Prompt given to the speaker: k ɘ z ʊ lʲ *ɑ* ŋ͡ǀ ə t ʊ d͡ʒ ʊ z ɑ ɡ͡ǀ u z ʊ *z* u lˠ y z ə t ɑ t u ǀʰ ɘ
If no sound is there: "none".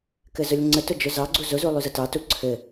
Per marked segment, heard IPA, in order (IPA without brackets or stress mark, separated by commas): ə, z